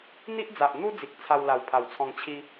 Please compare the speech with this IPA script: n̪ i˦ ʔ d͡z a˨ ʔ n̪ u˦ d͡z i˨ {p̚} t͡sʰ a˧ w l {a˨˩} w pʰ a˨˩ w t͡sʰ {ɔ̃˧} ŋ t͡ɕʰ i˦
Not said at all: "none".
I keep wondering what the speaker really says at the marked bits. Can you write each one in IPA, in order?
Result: k̚, a˨˩, ɔ̃˧

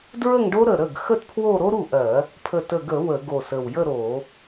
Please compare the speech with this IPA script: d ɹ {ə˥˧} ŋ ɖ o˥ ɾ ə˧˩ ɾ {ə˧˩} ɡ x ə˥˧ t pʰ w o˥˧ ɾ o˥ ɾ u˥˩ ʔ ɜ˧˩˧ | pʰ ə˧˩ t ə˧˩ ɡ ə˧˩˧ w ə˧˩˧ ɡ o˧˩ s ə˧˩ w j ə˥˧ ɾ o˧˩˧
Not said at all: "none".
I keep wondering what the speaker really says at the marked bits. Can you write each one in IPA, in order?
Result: ə˥˧, ə˥˩

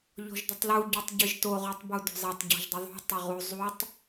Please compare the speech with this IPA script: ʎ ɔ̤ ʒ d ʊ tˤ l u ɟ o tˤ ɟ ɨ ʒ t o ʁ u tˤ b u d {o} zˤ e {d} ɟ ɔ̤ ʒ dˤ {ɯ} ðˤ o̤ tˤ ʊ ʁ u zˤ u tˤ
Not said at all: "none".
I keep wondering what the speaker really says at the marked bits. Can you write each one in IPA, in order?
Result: o̤, tˤ, ʊ

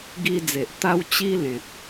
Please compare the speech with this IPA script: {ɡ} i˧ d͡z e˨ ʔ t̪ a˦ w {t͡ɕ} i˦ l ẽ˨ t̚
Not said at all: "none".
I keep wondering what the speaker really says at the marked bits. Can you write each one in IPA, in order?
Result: ɡ, t͡ɕ

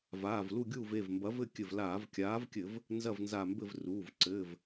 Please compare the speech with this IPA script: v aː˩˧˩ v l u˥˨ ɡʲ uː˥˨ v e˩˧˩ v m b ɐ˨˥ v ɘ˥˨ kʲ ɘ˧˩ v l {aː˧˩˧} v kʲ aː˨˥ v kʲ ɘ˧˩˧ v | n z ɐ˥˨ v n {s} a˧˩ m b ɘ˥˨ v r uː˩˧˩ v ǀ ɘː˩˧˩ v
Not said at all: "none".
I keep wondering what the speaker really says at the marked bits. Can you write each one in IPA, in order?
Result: aː˧˩˧, z

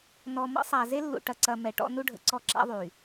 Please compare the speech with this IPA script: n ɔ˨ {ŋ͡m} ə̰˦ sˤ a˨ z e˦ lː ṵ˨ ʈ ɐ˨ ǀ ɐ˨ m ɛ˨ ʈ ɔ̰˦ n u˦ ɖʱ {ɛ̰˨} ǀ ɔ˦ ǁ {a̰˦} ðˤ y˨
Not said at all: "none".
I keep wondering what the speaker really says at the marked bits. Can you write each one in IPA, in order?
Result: m, ə̰˨, a̰˦

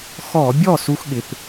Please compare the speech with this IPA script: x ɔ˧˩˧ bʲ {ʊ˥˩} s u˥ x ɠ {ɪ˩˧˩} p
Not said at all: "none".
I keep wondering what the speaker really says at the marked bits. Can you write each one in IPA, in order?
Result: ɔ˥˩, ɪ˩˧˩

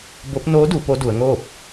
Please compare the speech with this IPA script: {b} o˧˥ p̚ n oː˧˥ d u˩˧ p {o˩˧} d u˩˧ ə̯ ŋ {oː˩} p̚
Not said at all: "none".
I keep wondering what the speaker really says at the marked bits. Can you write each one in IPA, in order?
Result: b, o˧˥, oː˥˨

